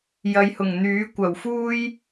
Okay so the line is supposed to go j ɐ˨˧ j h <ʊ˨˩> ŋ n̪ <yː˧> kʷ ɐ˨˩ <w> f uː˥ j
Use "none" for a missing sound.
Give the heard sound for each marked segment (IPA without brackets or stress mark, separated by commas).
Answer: ʊ˨˩, yː˨˥, w